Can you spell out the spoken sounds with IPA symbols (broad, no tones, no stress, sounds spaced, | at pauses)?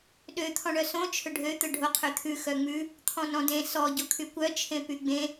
ɗ ø t̪ʰ ɔ̃ ɳ œ s õ t͡ʃʰ ɵ ɖʱ ø t̪ ɵ ɖʱ o qʰ ø t̪ʰ ʉ x œ ŋ͡m ʉ | t̪ʰ ɔ̃ n ɔ̃ d ẽ s ɔ ɟ o kʰ y kʷ œ t͡ʃʰ ẽ p y ɡ͡b ẽ